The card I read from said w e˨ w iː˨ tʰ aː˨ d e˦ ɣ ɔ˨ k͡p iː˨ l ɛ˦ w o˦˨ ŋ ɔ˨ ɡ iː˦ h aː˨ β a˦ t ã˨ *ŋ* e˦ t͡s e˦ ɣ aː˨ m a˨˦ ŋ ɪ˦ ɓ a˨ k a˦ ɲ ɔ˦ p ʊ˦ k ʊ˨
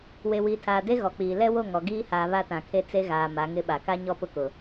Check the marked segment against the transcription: incorrect: kʰ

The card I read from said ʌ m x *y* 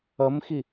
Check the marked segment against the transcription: incorrect: i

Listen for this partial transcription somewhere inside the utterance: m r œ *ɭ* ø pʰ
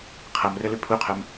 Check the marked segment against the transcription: incorrect: l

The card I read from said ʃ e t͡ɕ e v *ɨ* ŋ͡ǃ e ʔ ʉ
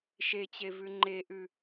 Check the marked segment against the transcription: incorrect: ʉ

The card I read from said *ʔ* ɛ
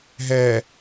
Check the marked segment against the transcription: incorrect: ɦ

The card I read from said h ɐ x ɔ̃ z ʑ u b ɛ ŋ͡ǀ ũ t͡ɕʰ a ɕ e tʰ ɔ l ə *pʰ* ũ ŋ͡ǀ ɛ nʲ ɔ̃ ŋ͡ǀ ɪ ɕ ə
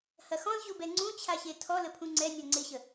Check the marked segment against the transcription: correct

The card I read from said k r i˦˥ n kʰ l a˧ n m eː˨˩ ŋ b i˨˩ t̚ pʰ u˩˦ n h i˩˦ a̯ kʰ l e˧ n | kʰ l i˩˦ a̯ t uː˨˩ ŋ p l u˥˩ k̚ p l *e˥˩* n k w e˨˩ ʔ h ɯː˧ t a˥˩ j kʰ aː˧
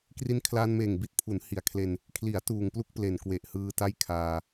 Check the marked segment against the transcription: incorrect: e˨˩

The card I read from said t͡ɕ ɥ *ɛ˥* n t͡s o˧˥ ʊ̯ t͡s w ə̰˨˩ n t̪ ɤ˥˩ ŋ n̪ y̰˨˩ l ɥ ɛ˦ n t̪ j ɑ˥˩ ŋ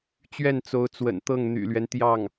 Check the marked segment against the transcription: incorrect: ɛ˥˩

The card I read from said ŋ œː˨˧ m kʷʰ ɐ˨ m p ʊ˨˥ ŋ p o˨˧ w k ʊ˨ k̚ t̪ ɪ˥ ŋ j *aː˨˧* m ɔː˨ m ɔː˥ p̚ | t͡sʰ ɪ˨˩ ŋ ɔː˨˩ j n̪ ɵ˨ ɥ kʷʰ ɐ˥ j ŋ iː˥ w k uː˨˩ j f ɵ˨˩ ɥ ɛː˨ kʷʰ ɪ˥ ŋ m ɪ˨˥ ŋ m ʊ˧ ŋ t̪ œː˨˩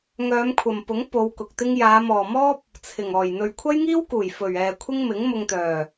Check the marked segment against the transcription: correct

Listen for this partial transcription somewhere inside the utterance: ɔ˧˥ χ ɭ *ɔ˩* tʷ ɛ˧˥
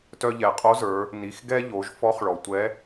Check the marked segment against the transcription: correct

